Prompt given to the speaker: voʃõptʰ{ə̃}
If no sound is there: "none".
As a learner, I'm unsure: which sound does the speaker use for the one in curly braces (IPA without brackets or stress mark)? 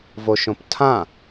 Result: ã